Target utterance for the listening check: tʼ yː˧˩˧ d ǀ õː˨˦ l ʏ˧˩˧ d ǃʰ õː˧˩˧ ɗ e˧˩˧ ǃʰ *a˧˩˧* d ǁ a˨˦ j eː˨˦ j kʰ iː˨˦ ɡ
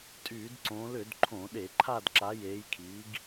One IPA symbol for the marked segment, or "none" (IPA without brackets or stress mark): a˦˨